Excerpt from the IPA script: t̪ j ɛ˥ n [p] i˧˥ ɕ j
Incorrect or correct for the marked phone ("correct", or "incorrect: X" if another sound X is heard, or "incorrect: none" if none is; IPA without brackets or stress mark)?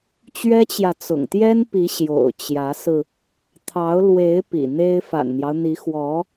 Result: correct